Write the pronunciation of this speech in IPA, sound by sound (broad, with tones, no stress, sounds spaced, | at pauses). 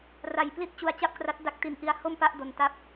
r a˨˩ j p l i˥˩ t̚ t͡ɕ u˧ a̯ t͡ɕ a˥˩ p̚ k r a˦˥ t̚ d a˦˥ k̚ t i˧ n ʔ i˦˥ a̯ h o˥˩ m p a˥˩ ʔ d o˧ n t a˦˥ p̚